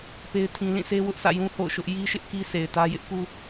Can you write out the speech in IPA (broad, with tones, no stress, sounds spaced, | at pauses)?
p e˦ ɪ̯ tʰ ĩ˦ l ĩ˦˨ s e˦ w ʊ˦ ʔ s ä̰˦˨ j ũ˦ h o̰˦˨ ʊ̯ ʃ ʊ˦ ʔ j i˦ ʃ ɪ˦ ʔ k i˦ s e˨ ɪ̯ t ä˦ j ɪ˦ ʔ k u˦